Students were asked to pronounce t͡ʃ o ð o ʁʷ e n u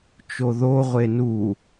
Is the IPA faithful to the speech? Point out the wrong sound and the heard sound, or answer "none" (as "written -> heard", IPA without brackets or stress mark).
none